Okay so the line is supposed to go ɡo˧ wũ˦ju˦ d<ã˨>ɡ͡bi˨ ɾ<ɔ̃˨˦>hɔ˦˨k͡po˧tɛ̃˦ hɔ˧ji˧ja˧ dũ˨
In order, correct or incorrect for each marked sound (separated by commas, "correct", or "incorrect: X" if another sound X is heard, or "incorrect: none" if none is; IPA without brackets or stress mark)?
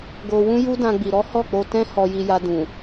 incorrect: ã˧, incorrect: ɔ˨˦